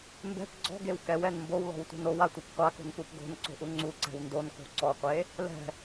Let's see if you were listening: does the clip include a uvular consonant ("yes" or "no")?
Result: yes